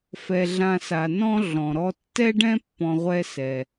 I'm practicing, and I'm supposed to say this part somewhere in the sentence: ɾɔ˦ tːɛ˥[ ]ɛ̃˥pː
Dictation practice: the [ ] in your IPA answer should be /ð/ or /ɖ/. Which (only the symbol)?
ɖ